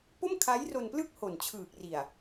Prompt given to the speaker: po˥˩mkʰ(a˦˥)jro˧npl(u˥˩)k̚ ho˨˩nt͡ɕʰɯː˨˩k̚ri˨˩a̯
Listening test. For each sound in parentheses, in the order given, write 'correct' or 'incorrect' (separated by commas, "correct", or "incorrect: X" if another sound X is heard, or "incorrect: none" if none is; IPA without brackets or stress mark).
correct, incorrect: ɯ˥˩